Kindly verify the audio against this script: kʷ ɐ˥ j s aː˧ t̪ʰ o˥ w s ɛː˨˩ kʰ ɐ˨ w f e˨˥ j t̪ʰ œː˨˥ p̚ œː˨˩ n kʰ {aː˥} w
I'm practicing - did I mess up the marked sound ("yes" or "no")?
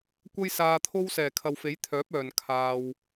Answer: yes